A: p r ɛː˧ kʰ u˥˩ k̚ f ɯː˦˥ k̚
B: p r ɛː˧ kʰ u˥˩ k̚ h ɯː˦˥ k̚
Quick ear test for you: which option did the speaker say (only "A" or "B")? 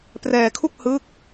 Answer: B